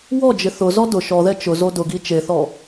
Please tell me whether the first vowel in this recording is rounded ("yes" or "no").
yes